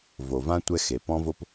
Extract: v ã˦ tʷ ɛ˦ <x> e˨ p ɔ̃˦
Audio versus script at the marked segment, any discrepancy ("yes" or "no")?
no